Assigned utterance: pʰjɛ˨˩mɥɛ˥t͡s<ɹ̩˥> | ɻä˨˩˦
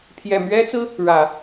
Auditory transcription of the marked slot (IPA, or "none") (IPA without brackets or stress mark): ɹ̩˥